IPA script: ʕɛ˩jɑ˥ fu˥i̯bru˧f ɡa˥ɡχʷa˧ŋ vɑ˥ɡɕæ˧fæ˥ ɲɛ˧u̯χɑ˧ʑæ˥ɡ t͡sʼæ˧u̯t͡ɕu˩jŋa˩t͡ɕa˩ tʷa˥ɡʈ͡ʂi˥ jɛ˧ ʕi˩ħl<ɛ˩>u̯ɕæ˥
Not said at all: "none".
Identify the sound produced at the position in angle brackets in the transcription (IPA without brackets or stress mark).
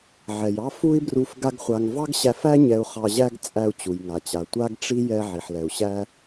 ɛ˩